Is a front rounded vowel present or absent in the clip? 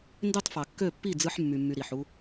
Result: present